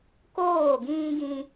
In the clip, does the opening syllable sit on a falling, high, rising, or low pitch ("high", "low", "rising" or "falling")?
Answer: falling